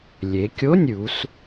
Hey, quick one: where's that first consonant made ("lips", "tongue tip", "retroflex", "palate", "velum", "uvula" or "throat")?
tongue tip